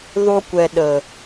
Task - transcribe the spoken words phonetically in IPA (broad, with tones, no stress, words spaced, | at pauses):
ðˤu˧kʷɛ˨ ɗə˨